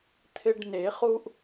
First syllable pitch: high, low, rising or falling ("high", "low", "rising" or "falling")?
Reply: high